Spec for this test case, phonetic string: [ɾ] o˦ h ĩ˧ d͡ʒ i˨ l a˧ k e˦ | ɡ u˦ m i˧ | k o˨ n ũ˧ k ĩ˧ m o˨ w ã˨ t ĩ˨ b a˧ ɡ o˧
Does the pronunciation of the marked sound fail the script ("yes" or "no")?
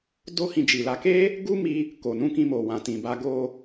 yes